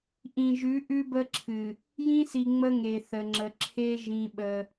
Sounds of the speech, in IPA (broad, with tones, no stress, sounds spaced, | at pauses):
ʔ ĩ˨ ʒ ʉ˨˦ ʔ ʉ˦ b ə˦ ǁʰ ɨ˨ | j ĩ˦ s i˨ ŋ͡m ə˦ ŋ e˨ θ ə˨ ŋ͡ǁ ə˨ ǁʰ e˦ ʒ ĩ˦ ɓ ə˦